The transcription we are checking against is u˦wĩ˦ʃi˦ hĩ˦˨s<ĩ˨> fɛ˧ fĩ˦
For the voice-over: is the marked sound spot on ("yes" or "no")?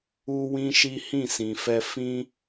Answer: yes